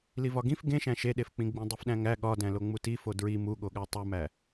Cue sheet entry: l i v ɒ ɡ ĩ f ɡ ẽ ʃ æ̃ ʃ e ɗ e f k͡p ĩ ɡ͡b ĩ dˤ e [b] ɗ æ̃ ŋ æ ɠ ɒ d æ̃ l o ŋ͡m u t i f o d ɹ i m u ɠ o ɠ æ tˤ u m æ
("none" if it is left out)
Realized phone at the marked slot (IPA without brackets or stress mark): f